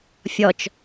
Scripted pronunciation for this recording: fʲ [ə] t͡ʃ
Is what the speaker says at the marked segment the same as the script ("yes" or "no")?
no